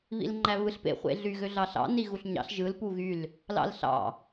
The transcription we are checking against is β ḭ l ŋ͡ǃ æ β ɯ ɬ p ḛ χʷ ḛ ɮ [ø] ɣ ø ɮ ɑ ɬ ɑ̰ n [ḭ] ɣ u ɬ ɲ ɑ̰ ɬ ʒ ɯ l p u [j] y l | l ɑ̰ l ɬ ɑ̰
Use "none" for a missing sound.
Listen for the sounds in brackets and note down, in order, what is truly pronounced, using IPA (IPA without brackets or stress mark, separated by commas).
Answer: y, i, ɣ